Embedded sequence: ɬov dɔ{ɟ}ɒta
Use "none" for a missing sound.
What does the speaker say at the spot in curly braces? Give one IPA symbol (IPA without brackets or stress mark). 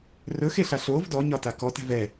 ɲ